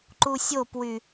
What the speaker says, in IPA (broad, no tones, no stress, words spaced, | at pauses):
ǃusʲopwy